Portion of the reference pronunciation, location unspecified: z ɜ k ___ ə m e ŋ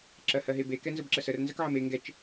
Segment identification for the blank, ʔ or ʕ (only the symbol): ʕ